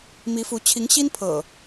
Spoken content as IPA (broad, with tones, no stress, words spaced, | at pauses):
mi˨˦fu˨˦ t͡ɕʰi˨˦ŋɕi˦npʰɤ̰˨˩